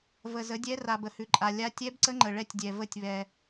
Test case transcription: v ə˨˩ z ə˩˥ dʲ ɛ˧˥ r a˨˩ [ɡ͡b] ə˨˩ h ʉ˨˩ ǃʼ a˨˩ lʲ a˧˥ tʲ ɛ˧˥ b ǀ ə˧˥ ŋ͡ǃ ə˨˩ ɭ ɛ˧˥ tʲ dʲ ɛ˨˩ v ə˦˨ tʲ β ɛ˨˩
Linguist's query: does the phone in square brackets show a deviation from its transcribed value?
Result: yes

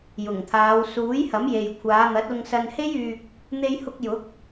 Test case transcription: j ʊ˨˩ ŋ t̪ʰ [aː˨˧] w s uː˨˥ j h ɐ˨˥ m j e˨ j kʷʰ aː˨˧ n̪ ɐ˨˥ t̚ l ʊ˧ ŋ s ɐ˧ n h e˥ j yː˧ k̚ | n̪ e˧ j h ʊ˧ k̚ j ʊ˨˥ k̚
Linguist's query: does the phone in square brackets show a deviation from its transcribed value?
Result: no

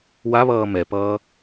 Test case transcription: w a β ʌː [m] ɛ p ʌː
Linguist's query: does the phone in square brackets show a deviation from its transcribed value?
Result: no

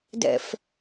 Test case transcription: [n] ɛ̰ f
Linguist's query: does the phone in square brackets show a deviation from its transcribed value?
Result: yes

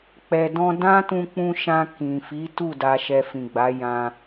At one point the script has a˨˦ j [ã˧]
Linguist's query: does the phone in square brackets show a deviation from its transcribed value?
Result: no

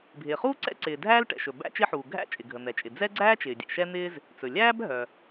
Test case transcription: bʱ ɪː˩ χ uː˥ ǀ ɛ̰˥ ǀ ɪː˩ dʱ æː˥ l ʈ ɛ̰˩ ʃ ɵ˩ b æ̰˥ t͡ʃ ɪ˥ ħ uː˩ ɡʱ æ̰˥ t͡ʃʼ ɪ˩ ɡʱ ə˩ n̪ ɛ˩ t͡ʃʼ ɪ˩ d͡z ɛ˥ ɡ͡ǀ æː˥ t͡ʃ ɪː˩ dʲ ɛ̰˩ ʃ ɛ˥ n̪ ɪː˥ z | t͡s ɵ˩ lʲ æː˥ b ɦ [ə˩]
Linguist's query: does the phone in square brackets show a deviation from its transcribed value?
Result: yes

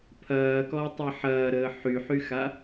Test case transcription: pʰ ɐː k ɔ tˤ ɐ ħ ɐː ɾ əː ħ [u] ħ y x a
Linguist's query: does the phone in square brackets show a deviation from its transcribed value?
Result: yes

